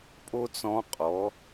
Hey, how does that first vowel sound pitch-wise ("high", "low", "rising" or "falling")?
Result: high